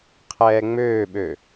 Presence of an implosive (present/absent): present